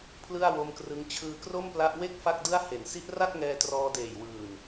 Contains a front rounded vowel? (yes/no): no